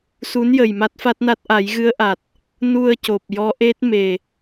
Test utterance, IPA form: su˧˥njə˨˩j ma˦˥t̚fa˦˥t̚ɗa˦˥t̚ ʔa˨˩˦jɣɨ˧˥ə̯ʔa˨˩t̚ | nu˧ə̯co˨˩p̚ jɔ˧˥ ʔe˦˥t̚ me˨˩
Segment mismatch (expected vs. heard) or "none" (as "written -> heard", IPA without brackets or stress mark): ɗ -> n